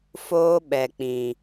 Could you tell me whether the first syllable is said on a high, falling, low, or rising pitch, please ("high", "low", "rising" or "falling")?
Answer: high